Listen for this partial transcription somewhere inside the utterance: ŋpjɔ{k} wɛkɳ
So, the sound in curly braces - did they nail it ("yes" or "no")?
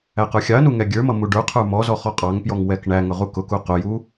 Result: no